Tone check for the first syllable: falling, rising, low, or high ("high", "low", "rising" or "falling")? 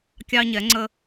high